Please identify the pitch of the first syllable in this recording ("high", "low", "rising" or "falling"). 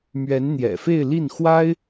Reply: rising